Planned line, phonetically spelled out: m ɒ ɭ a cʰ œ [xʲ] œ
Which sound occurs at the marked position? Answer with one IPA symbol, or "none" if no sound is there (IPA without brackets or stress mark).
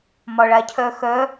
x